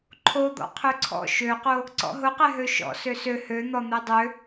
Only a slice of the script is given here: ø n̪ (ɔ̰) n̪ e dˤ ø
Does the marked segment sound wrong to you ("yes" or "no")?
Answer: yes